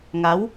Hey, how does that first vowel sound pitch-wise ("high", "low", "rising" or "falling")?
rising